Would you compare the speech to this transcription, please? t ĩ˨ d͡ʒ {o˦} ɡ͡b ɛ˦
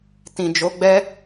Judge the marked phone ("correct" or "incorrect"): incorrect